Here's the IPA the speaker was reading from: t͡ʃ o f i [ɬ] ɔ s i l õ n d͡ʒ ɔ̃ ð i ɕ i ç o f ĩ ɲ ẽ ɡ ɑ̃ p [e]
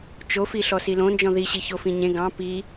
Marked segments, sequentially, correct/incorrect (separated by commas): correct, incorrect